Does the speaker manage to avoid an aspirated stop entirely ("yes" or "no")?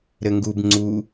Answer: yes